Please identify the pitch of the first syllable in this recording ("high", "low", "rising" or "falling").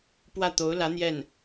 falling